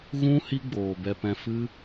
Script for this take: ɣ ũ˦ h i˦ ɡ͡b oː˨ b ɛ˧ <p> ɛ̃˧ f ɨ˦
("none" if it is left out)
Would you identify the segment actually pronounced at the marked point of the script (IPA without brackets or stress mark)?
p